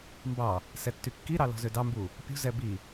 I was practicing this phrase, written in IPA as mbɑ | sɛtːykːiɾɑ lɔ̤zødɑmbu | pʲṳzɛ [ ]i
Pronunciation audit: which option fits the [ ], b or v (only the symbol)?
b